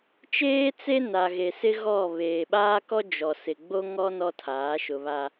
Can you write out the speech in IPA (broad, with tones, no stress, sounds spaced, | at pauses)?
t͡ʃ eː˦ t͡s e˦ n a˨ ɣ e˨ s ɪ˦ ɣ ɔ˦˨ β eː˨ ɓ aː˦ k ɔ˦ d͡ʒ ɔ˨ s ɪ˨ ɡ͡b o˦ ŋ ɔ˦ n ɔ˦ tʰ aː˨˦ ʃ ʊ˨ β a˨